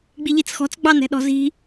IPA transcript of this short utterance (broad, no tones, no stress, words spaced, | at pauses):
ɡ͡biʎit͡sxɔ̤t͡s ɡ͡bɑnɛ̤ɗɔ̤zi̤